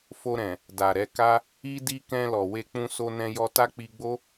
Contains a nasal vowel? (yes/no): yes